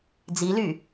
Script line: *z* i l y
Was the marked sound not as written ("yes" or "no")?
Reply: yes